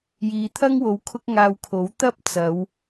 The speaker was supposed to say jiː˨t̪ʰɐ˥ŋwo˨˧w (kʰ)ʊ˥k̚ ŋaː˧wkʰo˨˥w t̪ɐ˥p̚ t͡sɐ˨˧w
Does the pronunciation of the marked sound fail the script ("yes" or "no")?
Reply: no